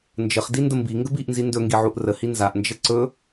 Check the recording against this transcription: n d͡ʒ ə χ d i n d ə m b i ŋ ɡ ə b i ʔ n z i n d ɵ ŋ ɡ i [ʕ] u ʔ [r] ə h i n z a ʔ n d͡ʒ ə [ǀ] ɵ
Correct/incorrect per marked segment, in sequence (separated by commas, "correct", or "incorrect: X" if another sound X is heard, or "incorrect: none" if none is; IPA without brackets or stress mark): correct, correct, correct